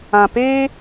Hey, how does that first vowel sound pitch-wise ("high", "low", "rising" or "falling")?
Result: low